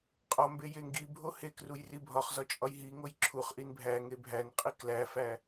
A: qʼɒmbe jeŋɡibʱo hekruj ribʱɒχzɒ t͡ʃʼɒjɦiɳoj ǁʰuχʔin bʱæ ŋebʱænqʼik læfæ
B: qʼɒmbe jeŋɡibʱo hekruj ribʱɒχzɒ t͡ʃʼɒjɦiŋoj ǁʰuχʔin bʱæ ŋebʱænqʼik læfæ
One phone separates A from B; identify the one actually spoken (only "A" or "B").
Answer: B